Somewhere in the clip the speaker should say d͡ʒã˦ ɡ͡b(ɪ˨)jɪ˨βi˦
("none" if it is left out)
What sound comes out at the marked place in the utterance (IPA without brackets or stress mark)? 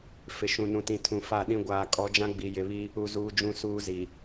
i˨